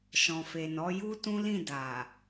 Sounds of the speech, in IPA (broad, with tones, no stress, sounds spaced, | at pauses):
ʃ ɔ̃˨ f e˨ n ɔ˨˦ j u˦ t ũ˦ l ĩ˦˨ d a˨